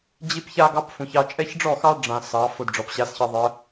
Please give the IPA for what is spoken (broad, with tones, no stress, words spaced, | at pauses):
d͡ʑi˦pça˦ɡɑ˦p fũ˨çɑ˦ t͡ʃʼɛ˦çɖ͡ʐɔ˦˨xɑ˦ ɖ͡ʐã˨ sɑ˨˦ fʊ˦˨dɖ͡ʐɔ˨p ɕa˦sçɑ˦ ðˤə˨˦